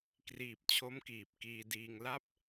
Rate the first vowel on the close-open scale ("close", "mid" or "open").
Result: close